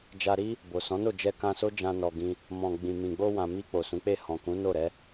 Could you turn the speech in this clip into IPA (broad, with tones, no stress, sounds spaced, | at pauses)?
d͡ʒ a˧ ɾ i˦ | b o˨ s ɔ̃˨˦ n o˦˨ d͡ʒ ɛ˧ k ã˧ s o˦ d͡ʒ ã˧ n ɔ˧ ɡ ĩ˦ | m ɔ̃˨ ɡ͡b ĩ˨ m ĩ˨ ɡ͡b o˧ w ã˨ m i˧ k͡p o˨ s ũ˨˦ k͡p e˦˨ h ɔ̃˨ k ũ˨˦ n o˦˨ ɾ ɛ˨˦